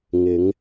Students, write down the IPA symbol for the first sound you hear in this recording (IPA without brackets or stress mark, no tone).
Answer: ŋ